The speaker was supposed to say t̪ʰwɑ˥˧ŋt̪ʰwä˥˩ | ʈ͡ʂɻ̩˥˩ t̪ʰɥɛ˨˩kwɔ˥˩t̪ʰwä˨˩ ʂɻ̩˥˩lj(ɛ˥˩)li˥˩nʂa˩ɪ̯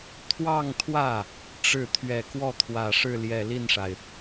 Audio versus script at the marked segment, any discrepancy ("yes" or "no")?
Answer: yes